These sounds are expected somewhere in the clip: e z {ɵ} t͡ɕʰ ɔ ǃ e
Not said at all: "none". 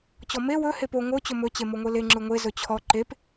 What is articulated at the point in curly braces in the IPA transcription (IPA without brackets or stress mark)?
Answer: ɵ